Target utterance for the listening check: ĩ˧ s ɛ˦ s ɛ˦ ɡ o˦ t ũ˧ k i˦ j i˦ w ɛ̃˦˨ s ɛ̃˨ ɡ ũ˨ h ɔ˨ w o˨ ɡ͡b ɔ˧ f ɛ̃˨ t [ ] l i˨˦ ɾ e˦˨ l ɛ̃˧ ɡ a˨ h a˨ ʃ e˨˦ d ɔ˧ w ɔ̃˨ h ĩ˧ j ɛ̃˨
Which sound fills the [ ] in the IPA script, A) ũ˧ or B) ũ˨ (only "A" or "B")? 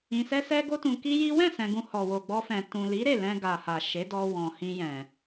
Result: B